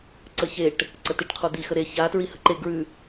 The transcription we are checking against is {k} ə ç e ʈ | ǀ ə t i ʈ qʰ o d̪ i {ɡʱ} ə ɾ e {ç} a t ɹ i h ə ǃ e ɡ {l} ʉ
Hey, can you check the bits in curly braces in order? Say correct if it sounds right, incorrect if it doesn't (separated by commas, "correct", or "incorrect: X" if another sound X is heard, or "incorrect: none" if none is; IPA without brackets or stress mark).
incorrect: ǀ, incorrect: x, correct, incorrect: ɹ